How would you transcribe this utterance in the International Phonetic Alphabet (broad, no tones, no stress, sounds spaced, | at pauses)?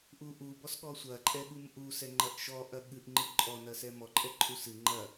ʔ u ʔ u b ɔ s ɠ ɔ sʷ ɐ ǃʼ ɛ ɠ u m ʔ u s ɛ ŋ͡ǃ ɐ ʔ ʃ ɔ ʔ ɐ ɠ ɨ ʔ ŋ͡ǃ ɨ ǃʼ ɔ n ɐ s ɛ m ɔ ǃʼ ɛ ǃʼ u s ɨ ŋ͡ǃ ɐ